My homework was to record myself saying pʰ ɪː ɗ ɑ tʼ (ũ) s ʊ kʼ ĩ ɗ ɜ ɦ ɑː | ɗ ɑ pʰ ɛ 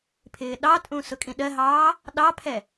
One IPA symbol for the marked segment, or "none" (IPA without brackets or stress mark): ũ